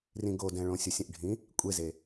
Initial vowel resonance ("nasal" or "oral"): nasal